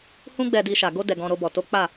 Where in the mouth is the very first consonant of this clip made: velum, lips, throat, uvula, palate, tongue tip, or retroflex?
throat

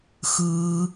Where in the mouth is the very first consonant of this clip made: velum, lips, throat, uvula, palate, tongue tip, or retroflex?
velum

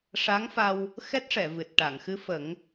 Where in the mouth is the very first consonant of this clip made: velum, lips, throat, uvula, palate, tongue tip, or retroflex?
retroflex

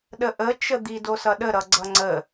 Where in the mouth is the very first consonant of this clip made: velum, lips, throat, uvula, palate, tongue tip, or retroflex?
tongue tip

